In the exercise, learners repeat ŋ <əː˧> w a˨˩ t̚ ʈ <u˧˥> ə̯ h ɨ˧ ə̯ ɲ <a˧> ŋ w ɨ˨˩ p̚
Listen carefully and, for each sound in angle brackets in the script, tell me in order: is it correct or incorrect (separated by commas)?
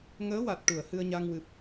incorrect, incorrect, correct